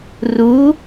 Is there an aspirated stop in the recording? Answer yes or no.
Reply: no